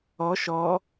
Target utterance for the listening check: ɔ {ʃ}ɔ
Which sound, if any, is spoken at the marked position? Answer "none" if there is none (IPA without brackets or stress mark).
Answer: ʃ